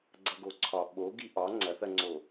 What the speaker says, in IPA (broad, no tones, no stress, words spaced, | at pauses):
ɡ͡ǀɐɡoǀʰɒ ɓo ɡiʔɒ ŋ͡ǀɐθ ɐŋ͡ǀo